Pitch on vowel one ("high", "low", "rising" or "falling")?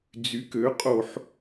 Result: rising